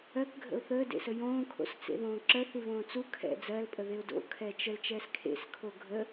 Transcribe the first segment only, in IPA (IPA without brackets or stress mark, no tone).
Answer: ɜ